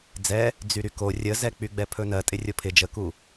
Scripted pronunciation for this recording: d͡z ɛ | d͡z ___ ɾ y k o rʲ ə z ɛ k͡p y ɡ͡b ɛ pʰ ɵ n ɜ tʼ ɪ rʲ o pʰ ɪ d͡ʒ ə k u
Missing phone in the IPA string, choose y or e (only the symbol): y